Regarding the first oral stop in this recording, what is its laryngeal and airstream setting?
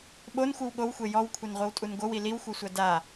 implosive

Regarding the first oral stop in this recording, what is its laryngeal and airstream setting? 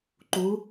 click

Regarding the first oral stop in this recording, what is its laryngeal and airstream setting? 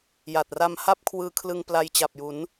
plain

